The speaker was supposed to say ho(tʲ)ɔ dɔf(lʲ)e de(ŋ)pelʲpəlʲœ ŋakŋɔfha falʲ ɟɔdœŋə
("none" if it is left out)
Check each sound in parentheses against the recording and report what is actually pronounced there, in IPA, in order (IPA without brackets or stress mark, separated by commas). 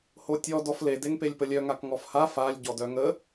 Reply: tʲ, l, ŋ